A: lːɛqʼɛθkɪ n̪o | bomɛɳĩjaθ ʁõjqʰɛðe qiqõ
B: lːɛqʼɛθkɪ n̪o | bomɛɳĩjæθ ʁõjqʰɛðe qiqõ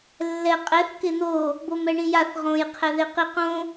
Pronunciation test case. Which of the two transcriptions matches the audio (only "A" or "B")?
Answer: A